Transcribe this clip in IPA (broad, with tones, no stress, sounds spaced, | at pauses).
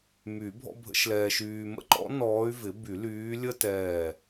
m y˨˩˦ bʱ ɔ̰˥ bʱ ə̰˧˥ ʃ l ɛː˧ ʃ yː˧ m ə̰˥ ǃ ɔ̰˧˥ n ɔː˧˥ y̯ v ɪ˩˥ b y˨˩˦ l yː˧˥ lʲ ə˥ t ɛː˧˩